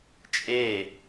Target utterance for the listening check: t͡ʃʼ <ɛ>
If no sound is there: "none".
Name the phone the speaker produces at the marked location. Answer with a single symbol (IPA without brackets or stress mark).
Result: e